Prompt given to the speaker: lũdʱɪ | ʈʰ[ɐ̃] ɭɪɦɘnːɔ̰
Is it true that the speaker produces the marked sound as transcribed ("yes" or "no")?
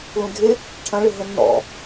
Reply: yes